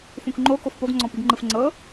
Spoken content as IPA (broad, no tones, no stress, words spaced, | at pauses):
fũkŋ͡ǃo kofpoɡŋ͡ǀɔ̃piɡ ŋ͡ǃɯfŋ͡ǀɤ